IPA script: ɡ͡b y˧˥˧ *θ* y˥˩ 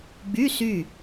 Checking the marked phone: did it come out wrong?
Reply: yes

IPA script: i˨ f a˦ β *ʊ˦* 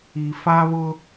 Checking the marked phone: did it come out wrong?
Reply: no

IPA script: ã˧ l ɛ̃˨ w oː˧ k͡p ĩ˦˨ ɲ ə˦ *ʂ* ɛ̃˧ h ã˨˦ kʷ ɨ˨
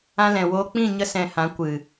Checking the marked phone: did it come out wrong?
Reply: yes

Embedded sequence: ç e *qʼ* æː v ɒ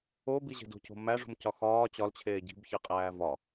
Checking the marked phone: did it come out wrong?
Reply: no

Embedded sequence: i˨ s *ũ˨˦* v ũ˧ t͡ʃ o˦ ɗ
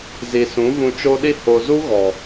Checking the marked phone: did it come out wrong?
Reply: no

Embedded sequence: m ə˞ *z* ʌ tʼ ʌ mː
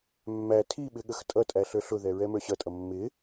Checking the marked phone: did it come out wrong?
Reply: yes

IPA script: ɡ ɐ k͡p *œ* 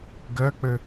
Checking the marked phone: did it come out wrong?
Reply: yes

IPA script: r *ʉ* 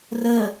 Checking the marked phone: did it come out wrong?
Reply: yes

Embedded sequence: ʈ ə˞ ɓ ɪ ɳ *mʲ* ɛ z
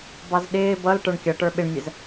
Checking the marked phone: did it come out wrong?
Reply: no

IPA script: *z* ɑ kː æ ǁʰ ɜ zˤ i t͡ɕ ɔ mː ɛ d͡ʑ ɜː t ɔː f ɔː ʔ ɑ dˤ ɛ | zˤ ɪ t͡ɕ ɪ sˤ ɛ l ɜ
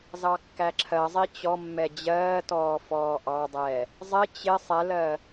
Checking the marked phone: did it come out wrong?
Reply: no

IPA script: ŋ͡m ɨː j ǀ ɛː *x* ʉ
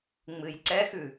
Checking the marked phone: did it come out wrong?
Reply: no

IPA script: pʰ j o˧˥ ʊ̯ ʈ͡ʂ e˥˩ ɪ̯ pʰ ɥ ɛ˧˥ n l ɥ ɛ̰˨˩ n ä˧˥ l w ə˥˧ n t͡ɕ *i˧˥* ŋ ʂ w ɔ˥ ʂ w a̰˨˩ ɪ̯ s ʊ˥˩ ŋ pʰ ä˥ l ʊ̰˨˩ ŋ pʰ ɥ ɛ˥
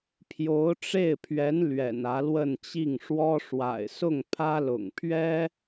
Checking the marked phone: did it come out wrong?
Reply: yes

